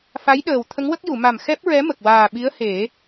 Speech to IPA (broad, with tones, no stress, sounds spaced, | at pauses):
f a˧˥ j ɗ əː˨˩ w t̪ʰ ə˧˥ ŋ w ə˦˥ k̚ j u˨˩˨ m a˨˩ m x ɛ˦˥ p̚ ɹ ɛ˧˥ m ə˨˩ k̚ w aː˨˩ ɓ i˧˥ ə̯ h e˨˩˦